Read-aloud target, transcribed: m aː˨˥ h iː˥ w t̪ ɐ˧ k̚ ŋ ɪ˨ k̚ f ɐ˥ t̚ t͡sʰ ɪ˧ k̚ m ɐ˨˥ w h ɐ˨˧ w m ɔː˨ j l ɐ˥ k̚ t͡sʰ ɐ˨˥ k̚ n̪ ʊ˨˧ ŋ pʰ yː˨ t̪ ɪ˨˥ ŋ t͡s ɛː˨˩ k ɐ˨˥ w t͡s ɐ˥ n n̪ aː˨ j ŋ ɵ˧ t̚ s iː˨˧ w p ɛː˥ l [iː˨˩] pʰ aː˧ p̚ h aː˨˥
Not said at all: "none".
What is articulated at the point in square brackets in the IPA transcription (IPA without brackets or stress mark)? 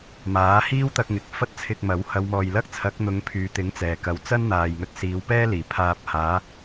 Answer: iː˨˩